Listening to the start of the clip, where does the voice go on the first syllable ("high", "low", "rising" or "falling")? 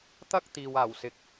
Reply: high